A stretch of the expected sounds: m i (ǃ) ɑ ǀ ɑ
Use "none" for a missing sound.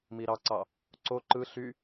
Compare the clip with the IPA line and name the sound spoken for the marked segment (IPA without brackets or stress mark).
ɾ